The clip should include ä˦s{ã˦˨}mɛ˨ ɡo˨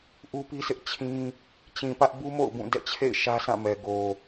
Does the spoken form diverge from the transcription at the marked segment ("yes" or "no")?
no